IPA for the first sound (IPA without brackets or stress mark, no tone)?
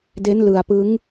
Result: d